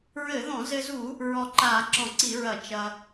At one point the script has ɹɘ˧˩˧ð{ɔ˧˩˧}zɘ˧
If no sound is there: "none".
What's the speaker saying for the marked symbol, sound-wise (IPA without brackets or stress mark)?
ɔ̃˧˩˧